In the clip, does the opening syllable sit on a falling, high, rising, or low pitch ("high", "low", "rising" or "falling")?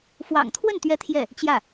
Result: low